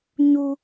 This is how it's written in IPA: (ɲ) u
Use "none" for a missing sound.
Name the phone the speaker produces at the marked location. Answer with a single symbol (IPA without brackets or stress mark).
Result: ɲ